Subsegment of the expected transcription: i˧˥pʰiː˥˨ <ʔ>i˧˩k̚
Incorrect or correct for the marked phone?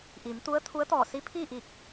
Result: correct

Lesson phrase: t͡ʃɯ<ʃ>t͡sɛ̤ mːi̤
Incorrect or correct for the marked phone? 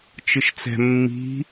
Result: correct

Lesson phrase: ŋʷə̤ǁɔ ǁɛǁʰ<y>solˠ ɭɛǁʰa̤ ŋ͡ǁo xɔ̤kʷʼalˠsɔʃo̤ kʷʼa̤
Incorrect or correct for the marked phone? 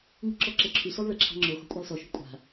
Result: correct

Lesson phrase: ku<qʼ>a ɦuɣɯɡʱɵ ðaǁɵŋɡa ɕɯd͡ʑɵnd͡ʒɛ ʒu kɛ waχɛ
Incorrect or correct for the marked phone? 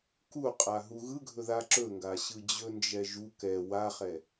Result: correct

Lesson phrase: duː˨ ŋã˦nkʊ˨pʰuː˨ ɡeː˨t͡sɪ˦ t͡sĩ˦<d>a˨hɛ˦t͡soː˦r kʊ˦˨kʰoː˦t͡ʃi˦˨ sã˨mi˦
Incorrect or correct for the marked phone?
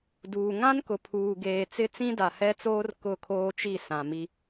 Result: correct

